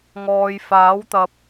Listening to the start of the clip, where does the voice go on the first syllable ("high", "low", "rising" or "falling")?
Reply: low